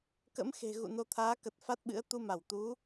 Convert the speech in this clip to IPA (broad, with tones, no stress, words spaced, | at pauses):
kə̰˧˥mxe̤˨˩ ɣṵ˧˨no˧t̪ʰaː˨˦kə˨˩t̚ fa˦˥t̚ɓɨ̰˧˥ə̯ t̪u˧ma˧˩wt̪u˨˦